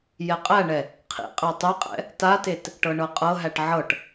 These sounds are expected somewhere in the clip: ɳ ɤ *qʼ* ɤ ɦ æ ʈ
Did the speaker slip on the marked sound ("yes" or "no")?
no